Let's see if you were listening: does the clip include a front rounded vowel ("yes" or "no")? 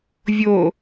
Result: no